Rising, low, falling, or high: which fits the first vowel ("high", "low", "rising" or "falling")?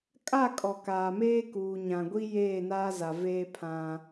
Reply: falling